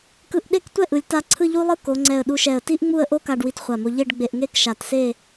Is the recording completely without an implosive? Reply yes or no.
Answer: no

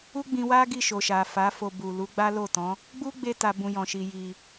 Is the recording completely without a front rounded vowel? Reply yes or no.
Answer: yes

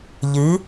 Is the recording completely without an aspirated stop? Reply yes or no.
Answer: yes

